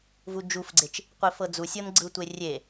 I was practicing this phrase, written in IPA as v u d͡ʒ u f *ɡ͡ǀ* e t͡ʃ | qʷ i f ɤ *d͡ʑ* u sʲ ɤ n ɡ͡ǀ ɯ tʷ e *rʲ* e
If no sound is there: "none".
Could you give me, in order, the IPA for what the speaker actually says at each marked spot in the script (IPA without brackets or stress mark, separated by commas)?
ɡ͡ǀ, d͡z, rʲ